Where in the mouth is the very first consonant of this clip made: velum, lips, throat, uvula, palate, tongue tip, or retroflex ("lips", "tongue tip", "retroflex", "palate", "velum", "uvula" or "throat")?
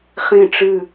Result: uvula